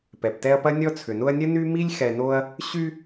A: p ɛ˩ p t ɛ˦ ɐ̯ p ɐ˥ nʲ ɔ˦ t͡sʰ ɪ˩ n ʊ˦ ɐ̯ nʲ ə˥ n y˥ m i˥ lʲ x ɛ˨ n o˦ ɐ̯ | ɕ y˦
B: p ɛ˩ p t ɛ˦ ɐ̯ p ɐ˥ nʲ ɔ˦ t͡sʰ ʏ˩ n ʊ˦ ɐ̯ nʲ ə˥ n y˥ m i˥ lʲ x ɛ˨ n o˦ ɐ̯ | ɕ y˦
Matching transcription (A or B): B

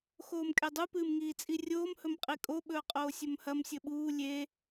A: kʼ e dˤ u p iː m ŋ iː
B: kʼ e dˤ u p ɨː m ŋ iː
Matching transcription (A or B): B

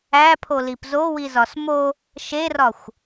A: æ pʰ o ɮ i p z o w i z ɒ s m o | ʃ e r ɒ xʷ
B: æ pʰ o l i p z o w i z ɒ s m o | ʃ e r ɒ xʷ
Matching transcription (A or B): B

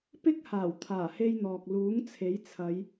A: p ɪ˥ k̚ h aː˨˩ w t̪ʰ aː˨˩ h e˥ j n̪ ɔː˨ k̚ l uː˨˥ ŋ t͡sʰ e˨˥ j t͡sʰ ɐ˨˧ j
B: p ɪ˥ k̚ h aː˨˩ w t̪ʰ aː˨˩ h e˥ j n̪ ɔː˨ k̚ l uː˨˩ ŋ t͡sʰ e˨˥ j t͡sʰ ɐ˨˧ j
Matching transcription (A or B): A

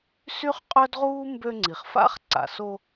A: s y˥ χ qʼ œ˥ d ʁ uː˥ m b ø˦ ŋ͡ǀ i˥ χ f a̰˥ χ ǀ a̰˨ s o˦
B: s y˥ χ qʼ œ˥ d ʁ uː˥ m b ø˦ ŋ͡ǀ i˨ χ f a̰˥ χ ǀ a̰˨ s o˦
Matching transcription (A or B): B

